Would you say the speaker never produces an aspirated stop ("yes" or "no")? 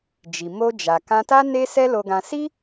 yes